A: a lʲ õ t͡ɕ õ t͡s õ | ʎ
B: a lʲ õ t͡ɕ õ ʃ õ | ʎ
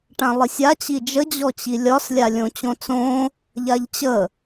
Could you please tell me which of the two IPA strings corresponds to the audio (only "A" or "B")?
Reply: A